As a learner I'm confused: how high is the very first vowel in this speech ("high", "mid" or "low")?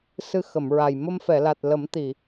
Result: high